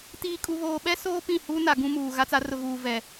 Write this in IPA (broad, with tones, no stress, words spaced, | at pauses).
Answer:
tiː˨kʼu˨βoː˨ɓɛ˦ soː˦ pĩ˦˨hu˦na˨ ɡũ˦muː˨ ɣa˦t͡sa˦ rʊ˨ɣuː˨vɛ˨